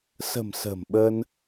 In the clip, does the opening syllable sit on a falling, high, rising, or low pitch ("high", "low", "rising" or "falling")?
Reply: low